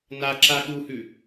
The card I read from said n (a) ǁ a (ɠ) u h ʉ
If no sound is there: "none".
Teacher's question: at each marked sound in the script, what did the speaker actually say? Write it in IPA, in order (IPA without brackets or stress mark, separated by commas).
a, ɠ